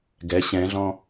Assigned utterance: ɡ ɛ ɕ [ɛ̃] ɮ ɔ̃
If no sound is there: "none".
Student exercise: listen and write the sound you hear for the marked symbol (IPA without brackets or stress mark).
ɛ̃